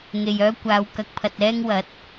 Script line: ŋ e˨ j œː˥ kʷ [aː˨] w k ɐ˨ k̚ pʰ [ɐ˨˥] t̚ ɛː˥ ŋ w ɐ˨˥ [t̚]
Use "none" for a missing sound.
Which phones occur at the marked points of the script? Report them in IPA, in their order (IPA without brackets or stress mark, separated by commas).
aː˨˧, ɐ˨, t̚